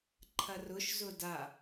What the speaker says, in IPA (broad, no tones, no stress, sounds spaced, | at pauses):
ǃʰ ɐ r ʊ ʃ z ʊ d a